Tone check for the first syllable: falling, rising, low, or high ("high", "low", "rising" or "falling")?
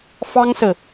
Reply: high